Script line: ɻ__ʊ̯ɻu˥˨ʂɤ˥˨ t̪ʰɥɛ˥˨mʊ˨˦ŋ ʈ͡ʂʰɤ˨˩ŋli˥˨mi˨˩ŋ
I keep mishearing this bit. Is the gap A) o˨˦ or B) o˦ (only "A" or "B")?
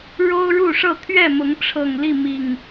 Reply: B